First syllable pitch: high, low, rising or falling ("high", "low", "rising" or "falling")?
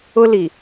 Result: high